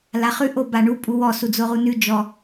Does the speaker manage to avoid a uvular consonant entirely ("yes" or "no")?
no